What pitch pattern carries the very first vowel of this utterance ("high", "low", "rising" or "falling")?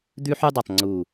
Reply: high